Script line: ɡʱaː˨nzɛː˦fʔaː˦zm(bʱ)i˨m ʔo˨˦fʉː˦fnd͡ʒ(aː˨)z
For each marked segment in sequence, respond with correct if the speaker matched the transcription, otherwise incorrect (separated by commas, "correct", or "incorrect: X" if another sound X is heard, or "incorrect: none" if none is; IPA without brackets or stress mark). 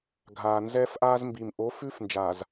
incorrect: b, correct